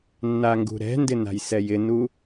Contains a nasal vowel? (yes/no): no